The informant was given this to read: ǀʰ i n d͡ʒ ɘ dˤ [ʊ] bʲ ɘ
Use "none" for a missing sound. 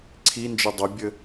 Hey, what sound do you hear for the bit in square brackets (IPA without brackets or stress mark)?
ʊ